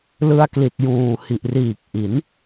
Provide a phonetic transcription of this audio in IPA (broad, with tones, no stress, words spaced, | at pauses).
lɯ˧a̯kli˨˩t̚juː˨˩ hi˨˩ʔriː˨˩k̚ʔi˩˦n